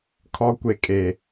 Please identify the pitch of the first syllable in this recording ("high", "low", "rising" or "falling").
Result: low